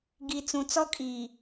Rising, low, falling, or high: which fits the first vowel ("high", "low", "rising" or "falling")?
low